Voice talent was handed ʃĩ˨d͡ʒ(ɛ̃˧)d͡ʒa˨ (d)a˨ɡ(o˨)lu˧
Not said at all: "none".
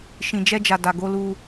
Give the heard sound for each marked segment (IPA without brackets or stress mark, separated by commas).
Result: ɛ˧, d, o˧